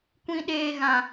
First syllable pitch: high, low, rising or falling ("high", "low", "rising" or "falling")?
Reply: high